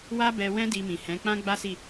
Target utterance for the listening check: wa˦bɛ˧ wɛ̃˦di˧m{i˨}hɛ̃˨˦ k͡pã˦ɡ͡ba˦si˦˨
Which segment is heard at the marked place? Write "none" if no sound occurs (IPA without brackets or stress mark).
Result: ĩ˨